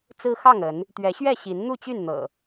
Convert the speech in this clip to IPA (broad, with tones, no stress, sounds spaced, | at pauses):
t͡s ɹ̩˦ x ɑ˥˨ ŋ ə˨˦ n | t̪ ɥ ɛ˨˦ ɕ ɥ ɛ˥˨ ɕ i˨˦ n n̪ u˥˨ t͡ɕ y˥˨ n n̪ ɤ̰˨˩